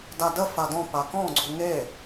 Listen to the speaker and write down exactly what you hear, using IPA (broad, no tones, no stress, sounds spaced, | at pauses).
d a d ə f a d ɔ̃ p a k ɔ̃ ɡ͡ǀ u ŋ e